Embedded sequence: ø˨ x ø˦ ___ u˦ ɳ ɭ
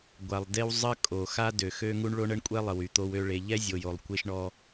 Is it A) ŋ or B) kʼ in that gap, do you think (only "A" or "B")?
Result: A